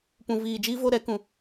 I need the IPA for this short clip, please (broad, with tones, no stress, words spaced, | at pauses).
pũ˧viː˧ d͡ʒiː˦vo˦ɾɛ˨˦kũ˧